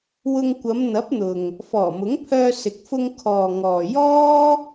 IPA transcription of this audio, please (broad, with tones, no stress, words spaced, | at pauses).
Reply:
wʊ˧ŋkʷɐ˨˧m n̪ɐ˨˥p̚n̪ʊ˨ŋ | fɔː˨˩mʊ˨˥ŋ pʰœː˧sɪ˨k̚fʊ˧ŋ kʰɔː˨ŋɔː˨ jɔː˥